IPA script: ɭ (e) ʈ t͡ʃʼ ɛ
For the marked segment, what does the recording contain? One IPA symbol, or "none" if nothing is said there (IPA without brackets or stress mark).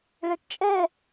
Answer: ɛ